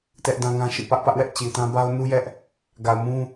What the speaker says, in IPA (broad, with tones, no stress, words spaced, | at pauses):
tɛ˦ʔdã˦ŋã˦ʃḭ˦˨ pä˦ʔpä˦ʔwɛ˦ʔ t͡ɕi˨tã˦ ba˦ʊ̯nu˦jɛ˦ʔ | ɡa˨ʊ̯mũ˦